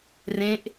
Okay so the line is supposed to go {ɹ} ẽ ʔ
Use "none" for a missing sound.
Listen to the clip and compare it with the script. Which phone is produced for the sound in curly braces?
r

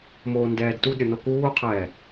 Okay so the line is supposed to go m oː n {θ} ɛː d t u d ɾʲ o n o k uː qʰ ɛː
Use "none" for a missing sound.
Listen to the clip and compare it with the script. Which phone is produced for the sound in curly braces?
d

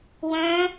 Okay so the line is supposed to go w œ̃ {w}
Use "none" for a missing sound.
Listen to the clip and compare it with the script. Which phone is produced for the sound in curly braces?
none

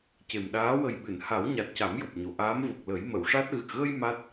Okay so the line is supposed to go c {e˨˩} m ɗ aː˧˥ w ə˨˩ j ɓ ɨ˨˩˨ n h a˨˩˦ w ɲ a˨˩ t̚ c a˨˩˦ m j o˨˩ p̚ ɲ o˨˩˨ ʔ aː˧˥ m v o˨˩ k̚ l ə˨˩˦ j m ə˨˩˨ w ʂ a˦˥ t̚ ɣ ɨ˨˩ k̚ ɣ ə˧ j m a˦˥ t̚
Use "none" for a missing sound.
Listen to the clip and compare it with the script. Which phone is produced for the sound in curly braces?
e˨˩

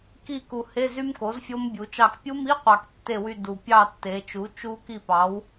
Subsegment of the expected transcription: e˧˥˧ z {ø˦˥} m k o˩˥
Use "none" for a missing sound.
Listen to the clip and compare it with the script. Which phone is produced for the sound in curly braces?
y˦˥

